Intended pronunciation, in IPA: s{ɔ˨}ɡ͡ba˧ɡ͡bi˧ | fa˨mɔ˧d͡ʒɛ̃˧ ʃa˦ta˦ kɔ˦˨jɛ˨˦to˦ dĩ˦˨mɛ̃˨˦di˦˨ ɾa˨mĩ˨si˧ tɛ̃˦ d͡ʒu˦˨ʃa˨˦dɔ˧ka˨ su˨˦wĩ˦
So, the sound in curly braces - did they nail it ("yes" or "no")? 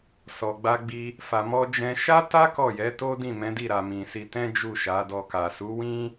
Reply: yes